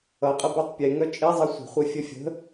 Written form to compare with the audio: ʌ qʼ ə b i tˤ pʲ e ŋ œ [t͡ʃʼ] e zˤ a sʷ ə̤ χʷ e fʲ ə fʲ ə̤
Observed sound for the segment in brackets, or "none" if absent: t͡ʃʼ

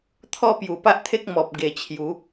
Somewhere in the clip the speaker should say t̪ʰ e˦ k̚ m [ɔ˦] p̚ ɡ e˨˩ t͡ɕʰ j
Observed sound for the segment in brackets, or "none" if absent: ɔ˨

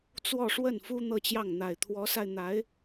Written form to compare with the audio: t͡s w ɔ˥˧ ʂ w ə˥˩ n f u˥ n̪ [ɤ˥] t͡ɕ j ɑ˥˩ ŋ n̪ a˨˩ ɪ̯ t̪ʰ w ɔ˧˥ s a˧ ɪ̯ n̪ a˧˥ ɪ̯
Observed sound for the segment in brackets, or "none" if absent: ɤ˥˧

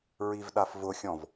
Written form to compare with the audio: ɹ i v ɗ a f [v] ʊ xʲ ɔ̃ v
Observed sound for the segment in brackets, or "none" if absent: v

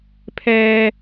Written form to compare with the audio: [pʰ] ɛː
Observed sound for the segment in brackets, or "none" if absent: pʰ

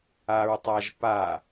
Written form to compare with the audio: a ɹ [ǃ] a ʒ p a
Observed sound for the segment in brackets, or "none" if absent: tˤ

